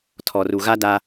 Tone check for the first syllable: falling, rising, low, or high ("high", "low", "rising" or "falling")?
low